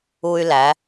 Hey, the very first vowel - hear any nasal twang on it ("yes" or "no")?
no